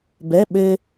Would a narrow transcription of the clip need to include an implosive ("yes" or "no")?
yes